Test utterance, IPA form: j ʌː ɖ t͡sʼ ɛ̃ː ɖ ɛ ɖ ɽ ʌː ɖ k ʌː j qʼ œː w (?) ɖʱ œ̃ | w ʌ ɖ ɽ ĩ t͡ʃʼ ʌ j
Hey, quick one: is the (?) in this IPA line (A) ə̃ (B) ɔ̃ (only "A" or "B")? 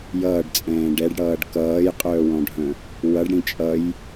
B